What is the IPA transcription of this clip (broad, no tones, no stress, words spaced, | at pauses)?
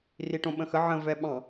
riʈõɓə̃xə ʕə̃ vɛɓɑ̃